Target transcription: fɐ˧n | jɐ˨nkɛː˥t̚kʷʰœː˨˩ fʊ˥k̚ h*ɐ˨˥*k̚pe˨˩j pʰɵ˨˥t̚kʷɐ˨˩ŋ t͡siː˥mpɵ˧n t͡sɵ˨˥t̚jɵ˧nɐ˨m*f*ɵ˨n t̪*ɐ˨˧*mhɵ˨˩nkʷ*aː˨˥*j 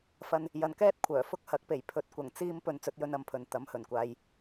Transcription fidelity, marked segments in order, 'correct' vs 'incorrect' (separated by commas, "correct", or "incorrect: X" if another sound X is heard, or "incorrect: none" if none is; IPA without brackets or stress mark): correct, incorrect: pʰ, incorrect: ɐ˨˥, incorrect: aː˨